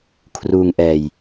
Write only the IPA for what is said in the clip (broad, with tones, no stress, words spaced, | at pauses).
kʰruː˧ŋ ʔɛː˧j